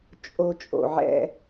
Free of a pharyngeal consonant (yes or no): no